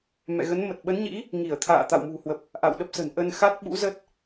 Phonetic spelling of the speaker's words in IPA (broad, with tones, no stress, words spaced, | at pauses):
mɛ̰˧˨ɣə˨˦nmə˨˩t̚ ɓə˨˦nɲḭ˧˥ | ŋi˧˩ə̯t̪ʰa̰ː˧˨ t̪a̰˧˨wmṳ˨˩hwə˨˩p̚ | ʔa̰˧˨wɗə˦˥p̚sə̤˨˩n ʔə˧n xa˦˥t̚ɓṵ˧˥ zə˦˥t̚